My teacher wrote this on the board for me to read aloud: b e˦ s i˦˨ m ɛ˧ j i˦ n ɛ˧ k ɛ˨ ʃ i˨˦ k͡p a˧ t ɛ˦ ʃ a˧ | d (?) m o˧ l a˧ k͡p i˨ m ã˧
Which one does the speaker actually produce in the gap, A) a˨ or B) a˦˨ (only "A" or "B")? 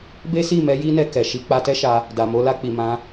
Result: A